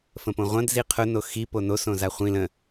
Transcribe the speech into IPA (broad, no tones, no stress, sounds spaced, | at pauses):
f ə̃ p õ ʁʷ ɐ̃ d z i qʰ ʊ n o x i p o n o s õ z a χʷ ĩ l ə̃